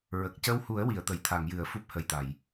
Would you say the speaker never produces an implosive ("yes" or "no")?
yes